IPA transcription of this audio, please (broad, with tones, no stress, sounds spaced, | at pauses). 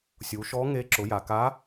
sʲ u˩˧ ʃ ɔ˧˥ ŋ e˧˥ ǁ ʊ˩˧ j a˩ k a˧˥